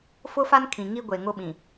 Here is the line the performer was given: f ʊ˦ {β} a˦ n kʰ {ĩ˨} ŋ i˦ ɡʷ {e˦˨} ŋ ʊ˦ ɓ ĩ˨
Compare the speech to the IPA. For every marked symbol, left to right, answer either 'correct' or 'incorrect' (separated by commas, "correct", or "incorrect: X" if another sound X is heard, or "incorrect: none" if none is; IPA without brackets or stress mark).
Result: incorrect: f, correct, incorrect: e˨